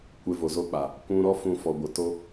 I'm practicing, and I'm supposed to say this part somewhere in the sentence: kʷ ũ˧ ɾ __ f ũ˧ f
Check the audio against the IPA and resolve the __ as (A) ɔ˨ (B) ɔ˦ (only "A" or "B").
B